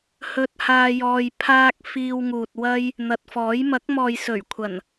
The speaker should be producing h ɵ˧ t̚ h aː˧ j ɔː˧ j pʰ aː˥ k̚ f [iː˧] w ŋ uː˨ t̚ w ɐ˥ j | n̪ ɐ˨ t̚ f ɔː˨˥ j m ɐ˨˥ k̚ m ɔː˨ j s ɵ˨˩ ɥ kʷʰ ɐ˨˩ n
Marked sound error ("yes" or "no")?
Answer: no